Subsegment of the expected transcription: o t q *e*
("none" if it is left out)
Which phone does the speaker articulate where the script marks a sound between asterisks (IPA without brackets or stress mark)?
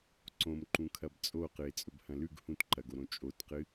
ɨ